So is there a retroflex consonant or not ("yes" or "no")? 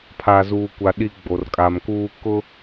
no